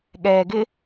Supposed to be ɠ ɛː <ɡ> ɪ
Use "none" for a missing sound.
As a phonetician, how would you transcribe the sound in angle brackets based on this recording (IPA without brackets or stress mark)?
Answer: ɡ